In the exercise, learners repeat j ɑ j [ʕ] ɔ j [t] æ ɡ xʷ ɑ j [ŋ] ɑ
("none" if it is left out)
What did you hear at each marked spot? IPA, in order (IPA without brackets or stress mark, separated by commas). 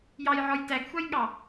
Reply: ʕ, t, ɠ